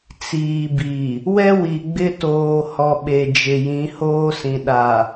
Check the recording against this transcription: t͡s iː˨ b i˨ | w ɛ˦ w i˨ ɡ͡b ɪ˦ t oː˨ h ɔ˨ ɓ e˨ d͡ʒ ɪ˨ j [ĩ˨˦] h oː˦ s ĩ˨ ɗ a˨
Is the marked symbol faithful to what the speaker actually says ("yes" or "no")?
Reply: yes